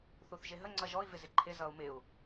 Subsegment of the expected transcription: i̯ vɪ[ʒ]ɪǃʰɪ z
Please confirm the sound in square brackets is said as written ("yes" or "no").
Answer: no